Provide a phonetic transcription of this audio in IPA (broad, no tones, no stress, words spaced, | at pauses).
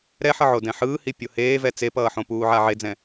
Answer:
ɾɛħʌʕodɛ̃ ħɯːhi pʲoheːvɛ t͡sepʌːħõ puːʕaʕed͡zɛ̃